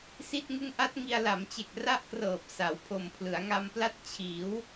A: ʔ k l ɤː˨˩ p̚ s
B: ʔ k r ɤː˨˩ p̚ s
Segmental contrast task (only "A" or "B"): B